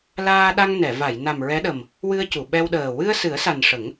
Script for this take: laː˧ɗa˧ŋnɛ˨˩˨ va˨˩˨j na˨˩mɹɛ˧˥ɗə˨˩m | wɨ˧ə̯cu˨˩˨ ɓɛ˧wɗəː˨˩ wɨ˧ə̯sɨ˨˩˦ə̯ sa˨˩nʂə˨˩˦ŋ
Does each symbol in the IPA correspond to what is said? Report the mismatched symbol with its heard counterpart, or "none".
none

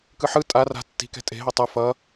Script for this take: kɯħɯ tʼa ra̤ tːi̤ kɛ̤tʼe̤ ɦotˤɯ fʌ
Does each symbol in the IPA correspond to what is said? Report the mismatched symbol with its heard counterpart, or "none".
none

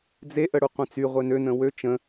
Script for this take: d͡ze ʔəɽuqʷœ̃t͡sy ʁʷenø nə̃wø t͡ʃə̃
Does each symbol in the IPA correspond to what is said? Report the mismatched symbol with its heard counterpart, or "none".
none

